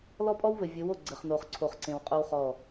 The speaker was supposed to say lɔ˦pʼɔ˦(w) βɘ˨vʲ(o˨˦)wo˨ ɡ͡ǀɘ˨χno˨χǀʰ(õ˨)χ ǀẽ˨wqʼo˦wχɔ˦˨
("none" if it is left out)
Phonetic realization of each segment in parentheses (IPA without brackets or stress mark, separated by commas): w, o˨˦, o˨